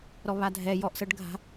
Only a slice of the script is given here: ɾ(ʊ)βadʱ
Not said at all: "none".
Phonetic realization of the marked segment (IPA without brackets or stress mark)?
ɔ